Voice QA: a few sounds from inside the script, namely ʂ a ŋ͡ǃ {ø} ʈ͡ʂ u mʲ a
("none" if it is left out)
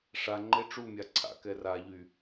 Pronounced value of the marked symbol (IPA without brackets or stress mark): e